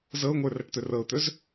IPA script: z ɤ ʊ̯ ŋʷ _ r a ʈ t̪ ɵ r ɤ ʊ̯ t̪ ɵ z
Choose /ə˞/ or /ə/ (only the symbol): ə˞